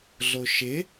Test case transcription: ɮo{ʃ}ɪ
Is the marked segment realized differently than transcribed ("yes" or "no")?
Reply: no